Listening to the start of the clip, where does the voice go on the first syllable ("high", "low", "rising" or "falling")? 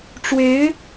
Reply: rising